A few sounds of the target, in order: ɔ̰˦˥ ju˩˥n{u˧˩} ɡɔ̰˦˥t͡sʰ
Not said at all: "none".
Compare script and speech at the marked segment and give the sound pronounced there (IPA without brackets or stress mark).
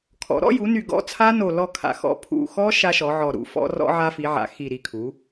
y˧˩